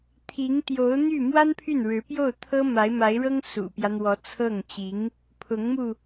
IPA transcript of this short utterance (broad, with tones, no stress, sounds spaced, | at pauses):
t̪ʰ i˧˥ ŋ t̪ j o˧˥ ʊ̯ n̪ y˥˩ m w a˥ n pʰ y˥˩ n ɻ ɻ̩˧˥ p j o˥˩ ʊ̯ t̪ʰ ɤ˥ m a˧˥ ɪ̯ m a˧˥ ɪ̯ ɻ ɤ˥ ŋ s ṵ˨˩ p j ä˦ n̪ w ɔ˧˥ t͡sʰ ɤ˥˩ ŋ t͡ɕ i˧˥ ŋ | pʰ ʊ˧˥ ŋ m u˧